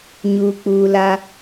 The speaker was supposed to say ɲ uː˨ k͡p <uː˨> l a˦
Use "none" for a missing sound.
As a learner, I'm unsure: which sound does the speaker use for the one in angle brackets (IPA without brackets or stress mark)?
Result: uː˨